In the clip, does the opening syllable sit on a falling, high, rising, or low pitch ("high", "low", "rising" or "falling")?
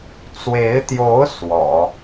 rising